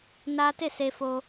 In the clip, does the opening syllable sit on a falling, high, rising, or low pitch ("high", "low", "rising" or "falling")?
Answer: high